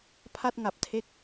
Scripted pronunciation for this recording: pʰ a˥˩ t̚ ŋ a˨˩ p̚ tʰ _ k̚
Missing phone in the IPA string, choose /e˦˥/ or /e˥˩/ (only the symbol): e˦˥